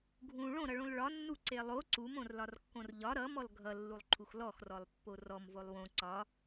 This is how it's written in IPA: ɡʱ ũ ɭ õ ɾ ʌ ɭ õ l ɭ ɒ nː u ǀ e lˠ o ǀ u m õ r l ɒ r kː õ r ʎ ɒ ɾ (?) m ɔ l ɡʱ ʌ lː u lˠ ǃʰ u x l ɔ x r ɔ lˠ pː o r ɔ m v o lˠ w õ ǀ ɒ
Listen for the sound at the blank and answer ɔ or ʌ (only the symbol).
ʌ